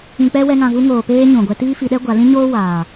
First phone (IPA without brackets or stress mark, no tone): ĩ